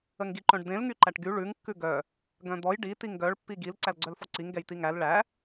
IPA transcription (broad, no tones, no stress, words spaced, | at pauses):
əŋɡiǃœ̃ɖd̪ẽl ŋyǃæʈɡy ɭʉŋ kːʉɡœ | ɡœ̃d̪ɔj ɖi tiŋɡœɭ pːiɡil ǀælɡ͡ǀœlfɔǀiŋ ɡɛjtiŋæl ɭæ